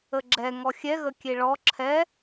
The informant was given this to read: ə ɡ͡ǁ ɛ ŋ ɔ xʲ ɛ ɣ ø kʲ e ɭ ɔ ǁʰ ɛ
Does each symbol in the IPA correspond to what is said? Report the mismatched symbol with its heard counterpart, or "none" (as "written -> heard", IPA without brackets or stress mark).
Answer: ø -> ə